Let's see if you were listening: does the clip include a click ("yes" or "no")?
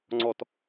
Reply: yes